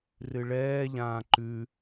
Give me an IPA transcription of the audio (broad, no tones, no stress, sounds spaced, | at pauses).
r ɨ ɭ ɛː ʎ ãː ǃ ʉ